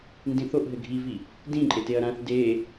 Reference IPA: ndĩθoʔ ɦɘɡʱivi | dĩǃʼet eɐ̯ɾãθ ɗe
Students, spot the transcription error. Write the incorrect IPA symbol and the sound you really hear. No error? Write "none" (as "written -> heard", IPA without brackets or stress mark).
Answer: ɗ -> d